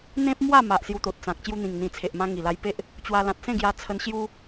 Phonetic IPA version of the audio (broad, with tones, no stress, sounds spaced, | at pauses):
n̪ ẽ˦ p̚ m w a˥˧ m a˨ ʔ s j u˧ t̪ o˨ t̚ t͡s ã˨ k̚ t͡ɕ j u˧ n̪ ĩ˨˩ ŋ n̪ ĩ˨˩ t͡sʰ e˨ ʔ m ã˧ ŋ i˨˩ l a˧ j p e˦ ʔ | t͡ɕ w a˧ l ã˨ t̚ s ẽ˥˧ ɡ j a˧ t͡sʰ ə˧ n ɕ j u˦